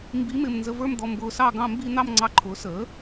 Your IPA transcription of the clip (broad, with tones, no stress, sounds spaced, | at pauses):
m b i˧˥ m ɪː˧ m n z ə˧ v ə˞˥˧ m d̪ ɔ˧ m b ʊː˧ s ɑ˥˧ ɡ ɑ̃˥˧ m b i˥˧ n̪ ɑ˥˧ m ŋ͡ǀ ɑ˧ ǃʰ ʊː˩˥ s əː˩˥